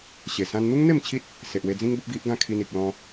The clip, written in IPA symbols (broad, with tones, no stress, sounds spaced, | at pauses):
ɕ e˨˩ s ã˧ n n̪ u˦ ŋ n̪ e˥˧ m t͡ɕʰ i˦ t̚ | s e˨ ʔ w e˧ d͡z ĩ˦ ŋ b ə˦ p̚ ɡ i˦ ʔ ɡ ã˥˧ kʰ i˧ n i˨ k̚ l ɔ̃˧